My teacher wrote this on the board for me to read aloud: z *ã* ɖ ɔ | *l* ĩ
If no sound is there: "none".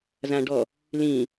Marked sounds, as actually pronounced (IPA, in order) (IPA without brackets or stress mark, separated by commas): ã, l